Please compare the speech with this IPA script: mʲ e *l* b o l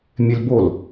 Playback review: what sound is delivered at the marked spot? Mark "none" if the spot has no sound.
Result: l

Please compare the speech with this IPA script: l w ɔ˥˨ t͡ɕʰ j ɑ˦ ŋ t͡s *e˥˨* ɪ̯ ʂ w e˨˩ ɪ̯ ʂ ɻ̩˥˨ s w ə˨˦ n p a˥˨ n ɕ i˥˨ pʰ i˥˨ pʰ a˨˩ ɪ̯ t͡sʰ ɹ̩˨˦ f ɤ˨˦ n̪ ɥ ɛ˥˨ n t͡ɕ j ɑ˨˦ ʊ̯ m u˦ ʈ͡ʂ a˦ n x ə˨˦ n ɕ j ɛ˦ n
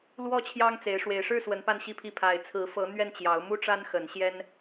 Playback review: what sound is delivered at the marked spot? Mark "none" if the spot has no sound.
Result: e˨˦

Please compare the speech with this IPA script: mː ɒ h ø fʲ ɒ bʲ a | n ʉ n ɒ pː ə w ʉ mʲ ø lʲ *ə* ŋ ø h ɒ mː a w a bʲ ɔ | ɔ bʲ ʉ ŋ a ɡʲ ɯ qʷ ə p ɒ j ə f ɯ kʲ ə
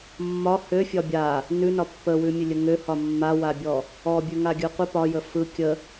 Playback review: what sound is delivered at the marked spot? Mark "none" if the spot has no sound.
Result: ə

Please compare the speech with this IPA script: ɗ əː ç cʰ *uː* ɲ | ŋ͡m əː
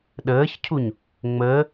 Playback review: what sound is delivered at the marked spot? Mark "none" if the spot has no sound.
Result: u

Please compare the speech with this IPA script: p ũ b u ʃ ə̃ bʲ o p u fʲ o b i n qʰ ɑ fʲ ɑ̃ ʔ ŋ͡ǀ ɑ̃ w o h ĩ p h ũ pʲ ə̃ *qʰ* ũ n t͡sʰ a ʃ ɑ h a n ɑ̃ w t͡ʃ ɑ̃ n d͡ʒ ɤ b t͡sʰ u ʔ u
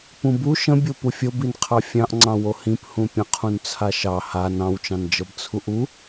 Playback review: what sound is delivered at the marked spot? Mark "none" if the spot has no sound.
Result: qʰ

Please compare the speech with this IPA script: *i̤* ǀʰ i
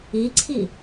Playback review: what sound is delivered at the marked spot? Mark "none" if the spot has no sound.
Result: i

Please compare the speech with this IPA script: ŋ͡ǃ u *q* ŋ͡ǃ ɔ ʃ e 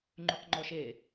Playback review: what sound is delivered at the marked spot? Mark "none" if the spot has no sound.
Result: q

